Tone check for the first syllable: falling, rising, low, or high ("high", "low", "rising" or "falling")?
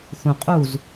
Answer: low